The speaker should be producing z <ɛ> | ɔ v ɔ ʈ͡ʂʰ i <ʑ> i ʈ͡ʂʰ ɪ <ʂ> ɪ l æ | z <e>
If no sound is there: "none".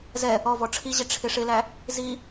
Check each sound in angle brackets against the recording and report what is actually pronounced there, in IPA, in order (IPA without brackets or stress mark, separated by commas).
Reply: ɛ, ʑ, ʂ, i